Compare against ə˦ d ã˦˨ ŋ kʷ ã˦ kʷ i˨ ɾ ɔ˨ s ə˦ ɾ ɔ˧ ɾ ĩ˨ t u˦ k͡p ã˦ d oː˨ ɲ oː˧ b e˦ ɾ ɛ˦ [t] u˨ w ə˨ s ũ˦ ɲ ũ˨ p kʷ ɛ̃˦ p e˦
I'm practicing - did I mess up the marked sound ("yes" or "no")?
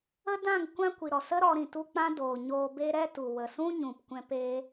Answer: no